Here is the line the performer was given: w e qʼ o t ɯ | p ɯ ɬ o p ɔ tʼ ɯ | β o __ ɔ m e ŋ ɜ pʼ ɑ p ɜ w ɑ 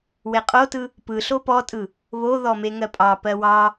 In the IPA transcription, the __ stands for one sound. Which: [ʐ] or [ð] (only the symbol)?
ð